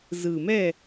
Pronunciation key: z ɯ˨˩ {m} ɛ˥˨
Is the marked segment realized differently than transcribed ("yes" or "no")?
no